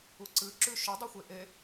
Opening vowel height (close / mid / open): close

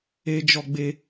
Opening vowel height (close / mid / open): mid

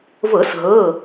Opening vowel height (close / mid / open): mid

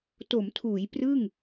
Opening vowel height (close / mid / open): mid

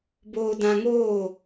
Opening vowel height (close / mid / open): mid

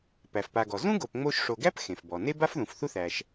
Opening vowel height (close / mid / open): open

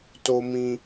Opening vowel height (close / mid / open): mid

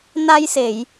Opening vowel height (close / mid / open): open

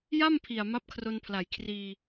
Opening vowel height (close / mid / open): open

